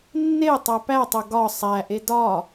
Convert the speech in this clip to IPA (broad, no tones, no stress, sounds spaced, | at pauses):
nː e tˤ æ p æ tˤ o ɡ ɒ sˤ æ ʔ e d ɒ